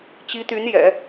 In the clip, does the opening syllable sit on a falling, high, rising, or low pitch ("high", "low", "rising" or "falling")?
rising